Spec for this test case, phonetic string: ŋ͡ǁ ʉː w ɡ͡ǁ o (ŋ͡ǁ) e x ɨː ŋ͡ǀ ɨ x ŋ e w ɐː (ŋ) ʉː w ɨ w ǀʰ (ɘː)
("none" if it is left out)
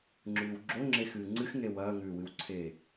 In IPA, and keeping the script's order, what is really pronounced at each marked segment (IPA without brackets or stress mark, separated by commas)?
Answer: ŋ͡ǁ, ŋ, eː